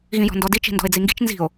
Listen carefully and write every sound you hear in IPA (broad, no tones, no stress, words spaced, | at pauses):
ɣĩjɔ̤ndɔdi t͡ʃi̤ndɔ̤e̯d͡ziŋɡi̤t͡ʃ nzi̤o̯